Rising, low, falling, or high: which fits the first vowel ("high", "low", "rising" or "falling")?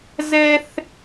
high